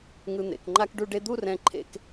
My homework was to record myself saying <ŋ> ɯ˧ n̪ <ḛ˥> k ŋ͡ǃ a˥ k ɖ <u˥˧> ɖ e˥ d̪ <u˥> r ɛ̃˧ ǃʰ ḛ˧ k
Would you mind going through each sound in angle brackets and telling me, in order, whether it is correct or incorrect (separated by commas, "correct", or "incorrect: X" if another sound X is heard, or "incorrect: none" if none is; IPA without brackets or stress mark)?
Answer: correct, incorrect: ḛ˩˧, correct, incorrect: u˥˧